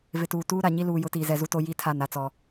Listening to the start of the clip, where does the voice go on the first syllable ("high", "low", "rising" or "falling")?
low